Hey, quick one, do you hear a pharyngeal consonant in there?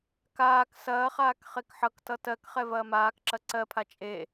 yes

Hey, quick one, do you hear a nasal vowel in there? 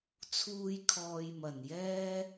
no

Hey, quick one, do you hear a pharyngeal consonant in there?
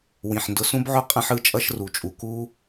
yes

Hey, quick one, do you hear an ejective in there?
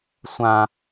no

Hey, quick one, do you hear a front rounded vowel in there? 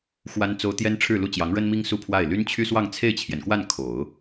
yes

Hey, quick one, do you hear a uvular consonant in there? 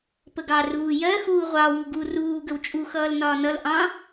yes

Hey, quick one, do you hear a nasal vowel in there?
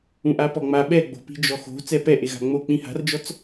yes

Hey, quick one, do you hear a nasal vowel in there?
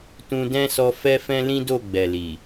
yes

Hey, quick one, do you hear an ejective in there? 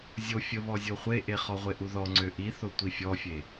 no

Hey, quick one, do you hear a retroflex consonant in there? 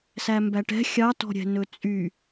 yes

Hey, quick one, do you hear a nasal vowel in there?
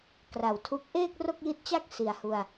no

